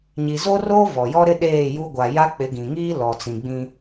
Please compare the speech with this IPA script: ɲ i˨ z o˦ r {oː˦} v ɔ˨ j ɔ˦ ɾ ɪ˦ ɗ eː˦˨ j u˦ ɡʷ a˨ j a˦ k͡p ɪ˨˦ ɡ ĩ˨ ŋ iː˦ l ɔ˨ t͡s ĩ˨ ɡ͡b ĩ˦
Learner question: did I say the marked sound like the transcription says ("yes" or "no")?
yes